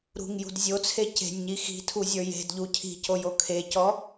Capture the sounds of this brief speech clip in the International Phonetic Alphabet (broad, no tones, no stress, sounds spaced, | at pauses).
ɾ ṳ ŋ j ṳ d zʲ o t͡sʰ e c e̤ nʲ ɲ i x i̤ tʰ u zʲ ə˞ j e̤ d ʎ u cʰ i̤ c o j o kʰ e c ɔ